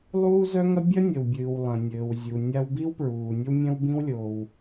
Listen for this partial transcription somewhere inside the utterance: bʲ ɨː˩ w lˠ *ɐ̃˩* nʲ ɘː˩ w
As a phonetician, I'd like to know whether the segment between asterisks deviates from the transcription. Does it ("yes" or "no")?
no